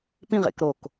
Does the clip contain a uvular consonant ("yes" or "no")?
yes